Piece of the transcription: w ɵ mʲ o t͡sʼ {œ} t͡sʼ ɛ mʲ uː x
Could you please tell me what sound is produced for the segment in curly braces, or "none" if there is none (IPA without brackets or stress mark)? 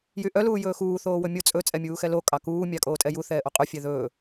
ɵ